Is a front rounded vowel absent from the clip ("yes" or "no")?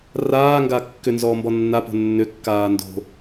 no